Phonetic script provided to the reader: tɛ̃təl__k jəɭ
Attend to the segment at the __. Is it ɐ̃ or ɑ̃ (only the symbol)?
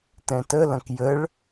ɐ̃